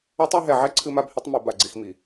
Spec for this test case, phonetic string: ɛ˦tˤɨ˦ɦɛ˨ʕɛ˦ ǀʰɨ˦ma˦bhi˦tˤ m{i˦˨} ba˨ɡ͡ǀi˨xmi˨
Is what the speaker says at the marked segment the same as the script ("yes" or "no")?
no